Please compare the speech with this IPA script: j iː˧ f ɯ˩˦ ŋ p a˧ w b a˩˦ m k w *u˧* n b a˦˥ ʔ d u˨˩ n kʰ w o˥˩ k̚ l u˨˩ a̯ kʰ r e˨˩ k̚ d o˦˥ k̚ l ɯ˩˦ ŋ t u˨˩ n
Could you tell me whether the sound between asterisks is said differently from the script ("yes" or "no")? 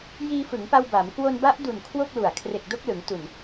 yes